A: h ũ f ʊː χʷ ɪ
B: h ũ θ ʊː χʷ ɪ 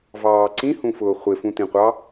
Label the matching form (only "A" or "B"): A